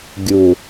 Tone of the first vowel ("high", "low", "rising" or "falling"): low